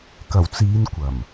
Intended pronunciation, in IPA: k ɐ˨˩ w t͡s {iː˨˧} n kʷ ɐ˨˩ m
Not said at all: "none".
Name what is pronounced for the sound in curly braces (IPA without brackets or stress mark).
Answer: iː˨˧